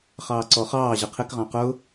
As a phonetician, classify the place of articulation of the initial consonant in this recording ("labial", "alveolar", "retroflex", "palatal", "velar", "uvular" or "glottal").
uvular